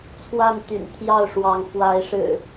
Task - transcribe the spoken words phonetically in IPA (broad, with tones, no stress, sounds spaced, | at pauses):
t͡sʰ w a˥˨ n t̪ y̰˨˩ n t̪ʰ j ɑ˥˨ ʊ̯ ʂ w ɑ˨˦ ŋ f w a˨˦ ɪ̯ ʂ ɻ̩˨˩